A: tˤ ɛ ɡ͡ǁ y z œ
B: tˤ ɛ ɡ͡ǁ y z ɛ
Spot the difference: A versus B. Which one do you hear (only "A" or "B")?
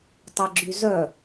A